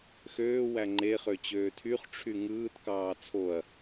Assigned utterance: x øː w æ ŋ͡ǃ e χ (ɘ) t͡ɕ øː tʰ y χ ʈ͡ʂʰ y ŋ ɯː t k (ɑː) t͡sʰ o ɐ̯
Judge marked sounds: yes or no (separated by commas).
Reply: no, yes